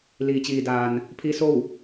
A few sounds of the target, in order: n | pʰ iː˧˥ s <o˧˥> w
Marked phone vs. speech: incorrect: o˥˨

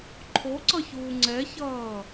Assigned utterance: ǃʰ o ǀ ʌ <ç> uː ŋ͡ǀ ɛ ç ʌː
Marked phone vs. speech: correct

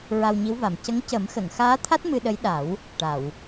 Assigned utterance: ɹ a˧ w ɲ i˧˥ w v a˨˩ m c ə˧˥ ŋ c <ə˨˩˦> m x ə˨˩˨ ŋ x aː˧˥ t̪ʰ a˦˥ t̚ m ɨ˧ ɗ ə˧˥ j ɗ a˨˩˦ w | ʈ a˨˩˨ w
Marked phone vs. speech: correct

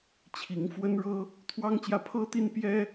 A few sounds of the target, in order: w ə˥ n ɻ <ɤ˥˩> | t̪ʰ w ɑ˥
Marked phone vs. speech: incorrect: ɤ˥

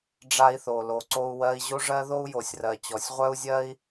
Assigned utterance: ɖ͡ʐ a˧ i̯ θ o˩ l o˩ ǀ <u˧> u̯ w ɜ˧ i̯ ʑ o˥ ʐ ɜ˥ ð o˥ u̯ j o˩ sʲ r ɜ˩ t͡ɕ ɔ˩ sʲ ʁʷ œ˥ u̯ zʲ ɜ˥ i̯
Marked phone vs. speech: incorrect: o˧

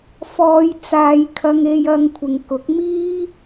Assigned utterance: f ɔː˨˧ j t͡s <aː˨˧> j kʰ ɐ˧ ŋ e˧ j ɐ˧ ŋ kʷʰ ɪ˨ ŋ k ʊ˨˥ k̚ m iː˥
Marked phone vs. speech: correct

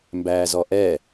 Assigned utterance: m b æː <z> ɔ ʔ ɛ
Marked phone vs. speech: correct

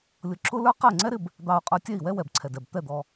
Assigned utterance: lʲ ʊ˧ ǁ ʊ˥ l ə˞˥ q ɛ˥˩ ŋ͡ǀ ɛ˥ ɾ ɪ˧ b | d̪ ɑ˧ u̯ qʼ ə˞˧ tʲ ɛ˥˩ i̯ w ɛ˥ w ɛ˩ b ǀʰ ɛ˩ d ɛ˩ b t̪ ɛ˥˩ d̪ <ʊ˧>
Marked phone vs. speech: incorrect: ɔ˧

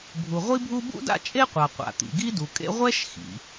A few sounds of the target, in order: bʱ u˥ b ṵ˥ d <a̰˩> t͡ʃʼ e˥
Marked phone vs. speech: incorrect: a̰˥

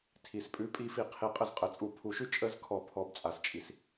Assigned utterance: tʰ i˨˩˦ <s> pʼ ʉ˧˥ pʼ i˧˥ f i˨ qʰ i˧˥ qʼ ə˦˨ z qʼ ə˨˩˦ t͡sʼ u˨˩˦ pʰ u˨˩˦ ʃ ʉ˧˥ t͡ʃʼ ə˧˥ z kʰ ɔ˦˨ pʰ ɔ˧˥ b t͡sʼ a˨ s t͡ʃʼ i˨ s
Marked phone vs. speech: correct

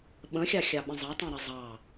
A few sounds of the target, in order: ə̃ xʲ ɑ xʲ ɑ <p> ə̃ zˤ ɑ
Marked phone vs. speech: incorrect: ɓ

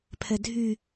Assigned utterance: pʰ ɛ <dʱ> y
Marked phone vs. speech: correct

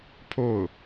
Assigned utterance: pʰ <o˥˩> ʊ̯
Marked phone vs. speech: correct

